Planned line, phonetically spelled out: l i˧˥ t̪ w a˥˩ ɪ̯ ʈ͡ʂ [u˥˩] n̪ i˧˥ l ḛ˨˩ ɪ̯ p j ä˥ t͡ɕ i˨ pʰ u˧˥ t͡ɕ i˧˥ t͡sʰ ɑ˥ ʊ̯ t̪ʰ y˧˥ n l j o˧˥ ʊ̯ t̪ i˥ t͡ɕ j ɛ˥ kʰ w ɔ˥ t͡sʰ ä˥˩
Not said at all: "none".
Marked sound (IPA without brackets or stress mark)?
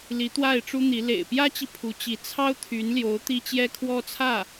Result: u˥